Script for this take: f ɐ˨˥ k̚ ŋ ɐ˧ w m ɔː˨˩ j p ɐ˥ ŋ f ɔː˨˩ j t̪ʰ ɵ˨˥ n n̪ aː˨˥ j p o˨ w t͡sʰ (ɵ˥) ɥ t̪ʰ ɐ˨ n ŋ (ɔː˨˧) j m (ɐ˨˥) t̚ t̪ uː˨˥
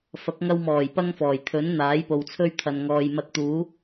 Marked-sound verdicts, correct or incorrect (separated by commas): correct, incorrect, incorrect